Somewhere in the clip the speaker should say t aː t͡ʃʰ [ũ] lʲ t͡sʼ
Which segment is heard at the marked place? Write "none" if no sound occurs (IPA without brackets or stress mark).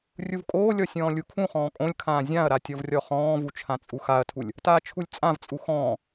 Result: u